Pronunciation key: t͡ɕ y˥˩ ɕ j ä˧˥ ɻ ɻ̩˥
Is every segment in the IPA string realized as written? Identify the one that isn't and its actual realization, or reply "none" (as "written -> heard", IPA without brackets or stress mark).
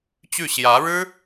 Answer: none